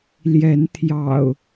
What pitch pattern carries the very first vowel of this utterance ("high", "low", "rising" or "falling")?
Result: rising